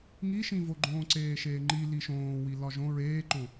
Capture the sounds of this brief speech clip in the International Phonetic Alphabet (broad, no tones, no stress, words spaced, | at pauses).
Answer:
ŋiʃĩvoɡ͡ǃõː ǀeːʃeːŋ͡ǃi liʃõːwi lɒʒõ ɹeːǃõ